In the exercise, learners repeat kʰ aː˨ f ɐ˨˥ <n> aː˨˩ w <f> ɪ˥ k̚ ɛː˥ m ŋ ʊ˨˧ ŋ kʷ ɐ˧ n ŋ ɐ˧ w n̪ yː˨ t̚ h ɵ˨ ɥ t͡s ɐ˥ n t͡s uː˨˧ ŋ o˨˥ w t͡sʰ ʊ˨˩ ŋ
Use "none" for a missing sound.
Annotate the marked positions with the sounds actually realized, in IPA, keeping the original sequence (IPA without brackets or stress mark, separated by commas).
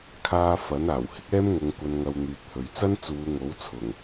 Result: n, h